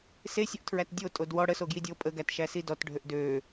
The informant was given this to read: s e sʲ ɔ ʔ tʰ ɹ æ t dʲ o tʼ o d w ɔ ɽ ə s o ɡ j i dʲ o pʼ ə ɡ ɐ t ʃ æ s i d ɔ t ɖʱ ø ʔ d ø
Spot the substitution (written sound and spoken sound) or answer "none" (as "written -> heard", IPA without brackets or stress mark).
ɐ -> æ